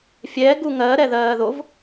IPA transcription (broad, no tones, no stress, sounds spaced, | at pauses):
fʲ ɛː ɡ u ŋ ɜː ɾ ɛ ð ɜː ð o v